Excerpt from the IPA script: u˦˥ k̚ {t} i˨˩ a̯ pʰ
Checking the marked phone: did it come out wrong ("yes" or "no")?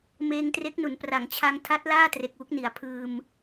yes